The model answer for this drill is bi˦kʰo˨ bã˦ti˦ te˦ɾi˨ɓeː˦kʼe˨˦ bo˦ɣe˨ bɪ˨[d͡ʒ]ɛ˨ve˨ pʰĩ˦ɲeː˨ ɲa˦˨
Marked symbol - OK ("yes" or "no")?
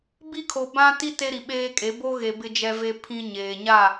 yes